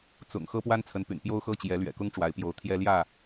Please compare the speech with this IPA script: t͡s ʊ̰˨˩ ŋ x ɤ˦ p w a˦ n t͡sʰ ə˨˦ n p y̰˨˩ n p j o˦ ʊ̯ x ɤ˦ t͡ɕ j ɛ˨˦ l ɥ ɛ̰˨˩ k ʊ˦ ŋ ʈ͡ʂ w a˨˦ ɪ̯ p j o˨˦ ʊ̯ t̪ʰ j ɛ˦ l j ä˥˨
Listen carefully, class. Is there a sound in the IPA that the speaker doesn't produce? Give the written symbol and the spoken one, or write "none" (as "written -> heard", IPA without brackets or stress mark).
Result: none